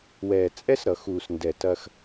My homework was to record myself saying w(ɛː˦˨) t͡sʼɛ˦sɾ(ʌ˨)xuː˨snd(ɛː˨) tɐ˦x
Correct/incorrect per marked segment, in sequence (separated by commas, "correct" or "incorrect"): incorrect, correct, incorrect